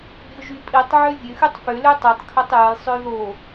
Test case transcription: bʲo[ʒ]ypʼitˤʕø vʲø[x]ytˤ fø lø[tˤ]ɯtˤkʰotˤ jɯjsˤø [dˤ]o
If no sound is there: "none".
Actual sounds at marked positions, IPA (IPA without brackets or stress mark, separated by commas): ʒ, x, tˤ, ð